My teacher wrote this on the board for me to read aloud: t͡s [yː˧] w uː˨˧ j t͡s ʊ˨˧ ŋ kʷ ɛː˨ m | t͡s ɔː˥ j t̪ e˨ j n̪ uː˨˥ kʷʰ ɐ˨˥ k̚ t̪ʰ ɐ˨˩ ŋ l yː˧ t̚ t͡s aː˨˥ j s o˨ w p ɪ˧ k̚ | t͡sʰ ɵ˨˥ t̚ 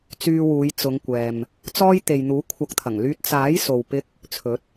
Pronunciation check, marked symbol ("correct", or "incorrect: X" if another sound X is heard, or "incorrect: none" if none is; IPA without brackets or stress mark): correct